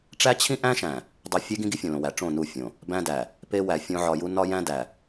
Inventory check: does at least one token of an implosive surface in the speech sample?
no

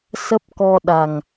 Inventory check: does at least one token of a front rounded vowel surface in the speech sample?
no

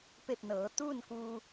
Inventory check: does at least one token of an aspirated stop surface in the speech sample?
no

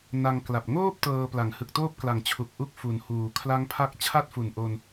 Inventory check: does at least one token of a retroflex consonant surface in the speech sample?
no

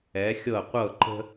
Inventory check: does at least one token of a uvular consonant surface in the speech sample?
yes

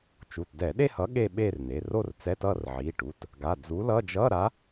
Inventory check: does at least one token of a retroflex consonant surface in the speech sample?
yes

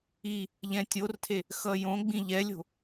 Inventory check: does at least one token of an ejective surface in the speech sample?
no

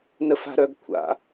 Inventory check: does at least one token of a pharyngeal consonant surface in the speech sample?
no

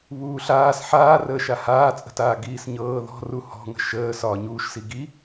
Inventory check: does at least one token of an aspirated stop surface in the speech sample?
no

